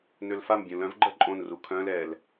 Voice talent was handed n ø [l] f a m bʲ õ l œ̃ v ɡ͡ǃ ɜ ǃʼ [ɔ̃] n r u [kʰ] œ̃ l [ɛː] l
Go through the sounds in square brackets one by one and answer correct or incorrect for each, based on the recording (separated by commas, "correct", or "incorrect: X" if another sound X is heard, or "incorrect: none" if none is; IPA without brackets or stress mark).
correct, incorrect: õ, correct, correct